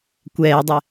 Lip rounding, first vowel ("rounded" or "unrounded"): unrounded